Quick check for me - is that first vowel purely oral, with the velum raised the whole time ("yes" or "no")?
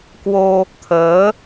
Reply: yes